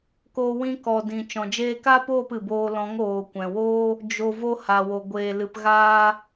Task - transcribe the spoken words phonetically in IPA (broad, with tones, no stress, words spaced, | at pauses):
koː˧wĩ˧ kɔ˨dĩ˨ t͡ʃɔ̃˨d͡ʒeː˧ka˦poː˦˨p ɨ˨boː˧ lɔ̃˨˦ŋoː˨kʷɛ̃˨woː˦ | d͡ʒo˨ vo˧ha˨wo˨ ɡʷeː˨lɨ˨p ɣaː˧